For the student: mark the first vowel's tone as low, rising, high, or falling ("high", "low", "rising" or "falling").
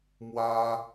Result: high